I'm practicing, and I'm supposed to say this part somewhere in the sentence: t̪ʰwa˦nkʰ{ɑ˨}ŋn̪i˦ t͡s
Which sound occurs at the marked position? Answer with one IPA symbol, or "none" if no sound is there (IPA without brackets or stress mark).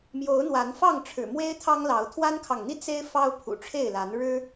ɑ˨